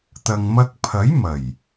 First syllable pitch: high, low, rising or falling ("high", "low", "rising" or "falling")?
low